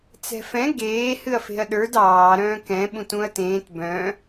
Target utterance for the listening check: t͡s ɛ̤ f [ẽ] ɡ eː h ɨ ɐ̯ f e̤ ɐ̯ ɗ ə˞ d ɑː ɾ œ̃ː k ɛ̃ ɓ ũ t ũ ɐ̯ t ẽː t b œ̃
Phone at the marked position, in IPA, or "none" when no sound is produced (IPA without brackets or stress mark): ɛ̃